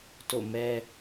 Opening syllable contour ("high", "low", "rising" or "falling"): falling